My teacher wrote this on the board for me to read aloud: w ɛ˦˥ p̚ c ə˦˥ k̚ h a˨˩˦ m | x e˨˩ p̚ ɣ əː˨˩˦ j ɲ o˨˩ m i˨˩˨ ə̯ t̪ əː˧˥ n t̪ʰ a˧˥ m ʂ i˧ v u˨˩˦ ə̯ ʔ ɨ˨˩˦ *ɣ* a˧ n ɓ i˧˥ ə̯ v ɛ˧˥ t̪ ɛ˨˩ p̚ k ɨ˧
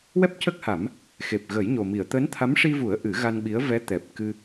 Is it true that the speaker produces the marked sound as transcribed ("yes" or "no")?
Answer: yes